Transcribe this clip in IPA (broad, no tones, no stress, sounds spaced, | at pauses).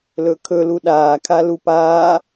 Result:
l ɵ kʰ ɵ l u ɗ aː kʰ a l u p aː